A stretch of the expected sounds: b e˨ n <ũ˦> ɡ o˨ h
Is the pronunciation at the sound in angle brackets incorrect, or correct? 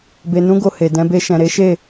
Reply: incorrect